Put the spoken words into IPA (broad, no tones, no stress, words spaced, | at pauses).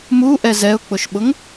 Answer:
muʔɛ zɛʊ̯k͡pʊʃɓʊŋ